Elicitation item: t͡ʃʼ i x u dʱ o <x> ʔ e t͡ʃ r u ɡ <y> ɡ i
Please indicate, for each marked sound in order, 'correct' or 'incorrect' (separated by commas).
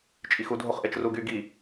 incorrect, correct